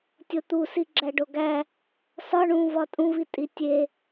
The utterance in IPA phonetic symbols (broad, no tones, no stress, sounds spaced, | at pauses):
tʲ o t̪ u s i ɡ͡ǁ æ ɖ o ɡ æ | s ɒ ɳ ũ v ɒ tʼ ũ v i tʼ i tʲ e